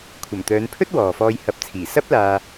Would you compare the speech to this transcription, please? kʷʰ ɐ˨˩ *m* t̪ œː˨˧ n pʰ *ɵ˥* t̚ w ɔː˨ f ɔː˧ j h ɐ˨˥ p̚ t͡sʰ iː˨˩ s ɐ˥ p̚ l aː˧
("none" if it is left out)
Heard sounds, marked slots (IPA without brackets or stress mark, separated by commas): m, ɵ˥